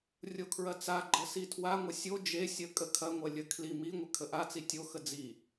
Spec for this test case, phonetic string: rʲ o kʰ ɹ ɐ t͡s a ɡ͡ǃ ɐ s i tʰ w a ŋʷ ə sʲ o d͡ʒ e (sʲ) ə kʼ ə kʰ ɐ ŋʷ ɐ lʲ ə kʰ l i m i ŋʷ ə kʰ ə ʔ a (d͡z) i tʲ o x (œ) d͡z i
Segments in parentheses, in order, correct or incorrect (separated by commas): correct, incorrect, incorrect